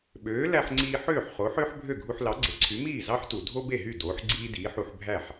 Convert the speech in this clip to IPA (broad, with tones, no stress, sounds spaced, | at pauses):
ɓ øː˩˥ l æ˧ ħ ŋ͡ǀ iː˧ ħ øː˥˩ ħ χ o˩˥ ħ øː˥ ħ bʱ ø˥˩ ɡʱ u˧ ħ l ɑ˩˥ ɡ͡ǀ e˩ ǀʰ y˩˥ m iː˥˩ z ɑ˥ ħ t u˩ dʱ o˥ b e˥˩ ɦ y˥˩ d oː˩˥ ħ ɡ͡ǀ iː˥ d iː˩˥ ħ u˧ ħ bʱ æ˥˩ ħ